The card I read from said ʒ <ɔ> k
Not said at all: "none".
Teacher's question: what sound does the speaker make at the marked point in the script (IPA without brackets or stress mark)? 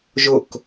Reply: ʊ